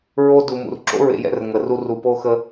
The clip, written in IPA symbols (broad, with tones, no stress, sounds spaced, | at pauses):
ɹ o˦ d u˨ m ṵ˨ r ǁ o̰˦ ɹ ḛ˨ j ɛ̰˦˨ r ŋ ə˨ r u˦ r u˨ p o˦ x ə˦